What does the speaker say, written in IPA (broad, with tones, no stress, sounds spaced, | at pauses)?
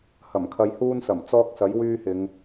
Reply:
h ɐ˨˩ m kʰ ɐ˧ j h uː˥ n s ɐ˨˩ m t͡s ɔː˥ k̚ s ɐ˨˥ j w yː˥ h ɪ˨˧ ŋ